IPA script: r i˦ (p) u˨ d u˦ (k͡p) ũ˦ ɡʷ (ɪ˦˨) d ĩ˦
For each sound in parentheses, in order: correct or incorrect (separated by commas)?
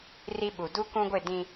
incorrect, incorrect, correct